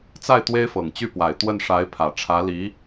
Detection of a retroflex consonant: present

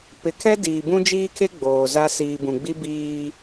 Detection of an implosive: absent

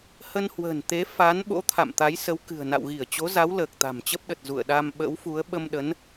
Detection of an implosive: present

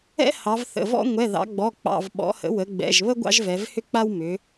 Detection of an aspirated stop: absent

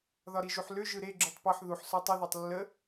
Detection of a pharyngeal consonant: present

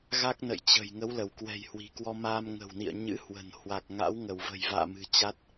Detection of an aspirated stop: absent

